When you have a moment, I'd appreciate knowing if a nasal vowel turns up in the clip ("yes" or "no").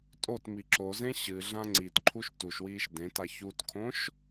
yes